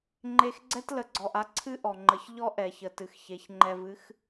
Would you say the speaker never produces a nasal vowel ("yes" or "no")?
yes